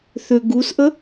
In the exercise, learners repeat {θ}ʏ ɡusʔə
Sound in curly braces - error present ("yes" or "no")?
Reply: no